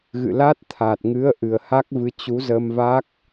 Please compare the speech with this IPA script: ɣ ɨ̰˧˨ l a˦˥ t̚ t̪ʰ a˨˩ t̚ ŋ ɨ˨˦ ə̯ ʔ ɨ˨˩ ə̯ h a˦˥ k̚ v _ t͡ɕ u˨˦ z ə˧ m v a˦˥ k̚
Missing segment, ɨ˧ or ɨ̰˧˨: ɨ˧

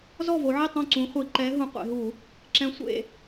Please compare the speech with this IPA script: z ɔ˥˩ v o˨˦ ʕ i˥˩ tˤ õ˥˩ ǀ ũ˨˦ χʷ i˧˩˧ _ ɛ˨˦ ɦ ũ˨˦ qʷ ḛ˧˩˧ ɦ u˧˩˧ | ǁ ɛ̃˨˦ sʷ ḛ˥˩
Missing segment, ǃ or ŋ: ǃ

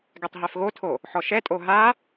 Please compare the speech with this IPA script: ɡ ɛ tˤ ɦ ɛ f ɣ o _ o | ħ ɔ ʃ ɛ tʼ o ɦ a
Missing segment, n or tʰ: tʰ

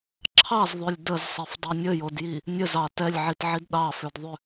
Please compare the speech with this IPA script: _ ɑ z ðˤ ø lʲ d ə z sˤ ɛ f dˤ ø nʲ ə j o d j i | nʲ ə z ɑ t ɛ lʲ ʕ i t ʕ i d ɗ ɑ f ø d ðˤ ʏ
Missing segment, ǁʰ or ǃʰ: ǁʰ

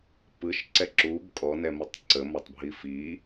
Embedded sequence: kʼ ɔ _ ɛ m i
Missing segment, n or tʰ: n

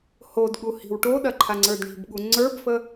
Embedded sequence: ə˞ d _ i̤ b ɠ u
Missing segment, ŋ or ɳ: ɳ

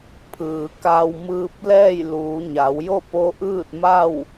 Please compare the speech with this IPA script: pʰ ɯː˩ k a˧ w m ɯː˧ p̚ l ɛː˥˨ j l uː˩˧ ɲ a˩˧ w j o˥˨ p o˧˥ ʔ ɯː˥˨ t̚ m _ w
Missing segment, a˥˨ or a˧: a˥˨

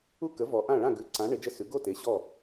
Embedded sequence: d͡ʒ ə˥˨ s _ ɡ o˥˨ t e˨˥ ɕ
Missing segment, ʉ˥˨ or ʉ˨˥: ʉ˨˥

